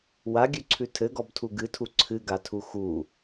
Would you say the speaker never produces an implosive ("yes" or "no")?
yes